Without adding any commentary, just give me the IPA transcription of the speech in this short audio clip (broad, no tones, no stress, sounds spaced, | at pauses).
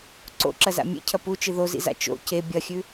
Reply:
ǀ o̰ ǁ ɐ z a̰ mʲ ḛ cʰ ɐ p u t͡ʃ ɨ ð o z ḭ z a̰ t͡ʃ o̰ c e bʲ ɐ xʲ ʉ